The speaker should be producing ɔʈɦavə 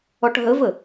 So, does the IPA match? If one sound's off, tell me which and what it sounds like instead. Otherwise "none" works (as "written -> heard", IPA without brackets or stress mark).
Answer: a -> ə